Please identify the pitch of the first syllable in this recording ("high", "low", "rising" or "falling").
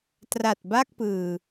low